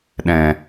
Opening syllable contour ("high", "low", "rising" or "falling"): low